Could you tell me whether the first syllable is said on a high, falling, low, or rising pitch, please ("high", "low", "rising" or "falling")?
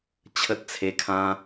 high